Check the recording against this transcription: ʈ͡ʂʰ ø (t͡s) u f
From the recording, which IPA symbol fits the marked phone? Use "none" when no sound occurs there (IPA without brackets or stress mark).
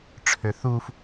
θ